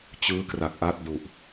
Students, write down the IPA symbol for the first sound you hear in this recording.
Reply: t͡ɕ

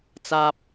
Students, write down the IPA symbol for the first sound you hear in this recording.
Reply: t͡s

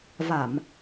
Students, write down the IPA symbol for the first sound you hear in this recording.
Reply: v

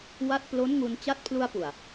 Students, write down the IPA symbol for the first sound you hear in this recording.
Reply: w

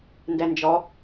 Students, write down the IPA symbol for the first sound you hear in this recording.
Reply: n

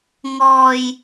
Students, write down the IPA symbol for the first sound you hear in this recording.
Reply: ŋ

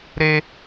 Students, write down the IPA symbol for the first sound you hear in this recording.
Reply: ɾ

